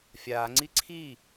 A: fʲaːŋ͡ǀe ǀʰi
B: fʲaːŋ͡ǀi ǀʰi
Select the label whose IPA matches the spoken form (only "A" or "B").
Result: B